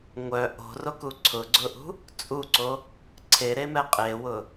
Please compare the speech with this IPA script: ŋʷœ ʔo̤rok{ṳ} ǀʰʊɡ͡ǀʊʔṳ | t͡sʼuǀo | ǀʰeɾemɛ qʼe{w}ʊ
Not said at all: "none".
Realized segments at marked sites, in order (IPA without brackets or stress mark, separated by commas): u, w